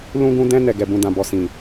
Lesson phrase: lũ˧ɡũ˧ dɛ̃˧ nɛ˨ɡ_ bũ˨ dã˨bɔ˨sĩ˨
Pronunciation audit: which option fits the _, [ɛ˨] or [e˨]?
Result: ɛ˨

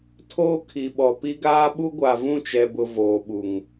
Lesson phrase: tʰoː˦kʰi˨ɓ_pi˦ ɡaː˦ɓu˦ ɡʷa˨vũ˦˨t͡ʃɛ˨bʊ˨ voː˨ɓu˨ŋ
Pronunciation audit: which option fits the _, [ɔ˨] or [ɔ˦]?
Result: ɔ˨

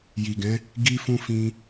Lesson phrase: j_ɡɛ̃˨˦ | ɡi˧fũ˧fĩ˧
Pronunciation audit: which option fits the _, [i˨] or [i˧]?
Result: i˨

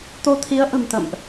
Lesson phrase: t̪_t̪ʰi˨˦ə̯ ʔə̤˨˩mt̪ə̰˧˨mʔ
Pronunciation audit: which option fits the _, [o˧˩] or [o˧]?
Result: o˧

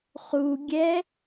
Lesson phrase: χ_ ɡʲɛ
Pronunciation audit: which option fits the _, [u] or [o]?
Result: u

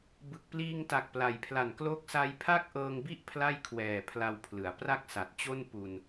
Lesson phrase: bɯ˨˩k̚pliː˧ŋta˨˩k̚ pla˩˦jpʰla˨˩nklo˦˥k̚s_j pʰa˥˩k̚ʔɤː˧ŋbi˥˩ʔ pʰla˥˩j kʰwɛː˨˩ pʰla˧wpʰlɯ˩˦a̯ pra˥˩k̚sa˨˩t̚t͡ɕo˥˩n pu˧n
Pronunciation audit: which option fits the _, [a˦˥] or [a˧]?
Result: a˦˥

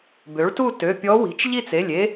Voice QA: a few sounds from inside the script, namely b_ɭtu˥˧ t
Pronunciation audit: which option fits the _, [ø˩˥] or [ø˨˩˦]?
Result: ø˩˥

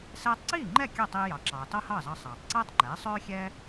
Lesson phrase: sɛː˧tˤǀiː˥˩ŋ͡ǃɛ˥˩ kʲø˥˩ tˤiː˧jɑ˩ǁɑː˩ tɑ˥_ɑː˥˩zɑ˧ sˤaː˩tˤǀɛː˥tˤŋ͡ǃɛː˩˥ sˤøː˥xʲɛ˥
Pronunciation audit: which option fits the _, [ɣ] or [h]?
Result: h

